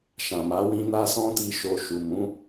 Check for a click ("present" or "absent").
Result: absent